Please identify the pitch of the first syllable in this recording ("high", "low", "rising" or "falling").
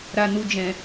low